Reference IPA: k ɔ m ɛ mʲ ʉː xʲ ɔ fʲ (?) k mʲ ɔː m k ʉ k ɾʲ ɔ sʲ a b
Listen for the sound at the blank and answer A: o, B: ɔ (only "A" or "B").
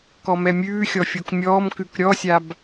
A